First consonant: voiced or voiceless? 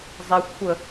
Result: voiced